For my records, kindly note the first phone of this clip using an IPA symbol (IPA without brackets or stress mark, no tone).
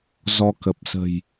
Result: z